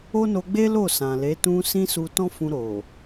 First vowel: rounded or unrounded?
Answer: rounded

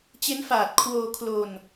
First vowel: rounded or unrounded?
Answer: unrounded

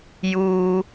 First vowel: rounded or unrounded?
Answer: rounded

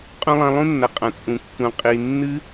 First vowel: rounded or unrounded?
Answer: rounded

